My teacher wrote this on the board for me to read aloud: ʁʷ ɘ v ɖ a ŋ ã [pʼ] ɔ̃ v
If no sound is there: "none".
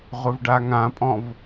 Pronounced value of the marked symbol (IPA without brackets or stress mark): pʼ